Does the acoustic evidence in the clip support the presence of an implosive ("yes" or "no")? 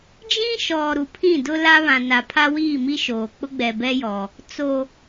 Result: no